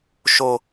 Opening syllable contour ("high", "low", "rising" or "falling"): low